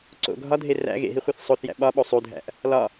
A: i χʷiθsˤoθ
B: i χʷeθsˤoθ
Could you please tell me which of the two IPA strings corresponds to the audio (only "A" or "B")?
B